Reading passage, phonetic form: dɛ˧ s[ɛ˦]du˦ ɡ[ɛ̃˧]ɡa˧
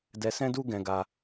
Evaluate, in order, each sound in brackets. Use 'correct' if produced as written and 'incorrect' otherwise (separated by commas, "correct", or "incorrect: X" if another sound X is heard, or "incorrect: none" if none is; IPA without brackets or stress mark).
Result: incorrect: ɛ̃˦, correct